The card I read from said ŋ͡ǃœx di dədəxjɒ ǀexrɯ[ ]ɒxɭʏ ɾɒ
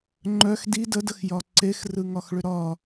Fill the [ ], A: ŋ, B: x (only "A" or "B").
A